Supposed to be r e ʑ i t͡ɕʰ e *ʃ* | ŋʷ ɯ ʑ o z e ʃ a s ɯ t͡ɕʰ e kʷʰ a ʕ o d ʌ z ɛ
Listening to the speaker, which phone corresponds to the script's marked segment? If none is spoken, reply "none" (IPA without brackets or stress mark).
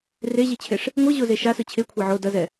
ʂ